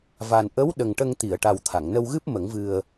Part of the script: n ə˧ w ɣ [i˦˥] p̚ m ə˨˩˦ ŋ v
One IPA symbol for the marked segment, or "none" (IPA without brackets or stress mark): ɨ˦˥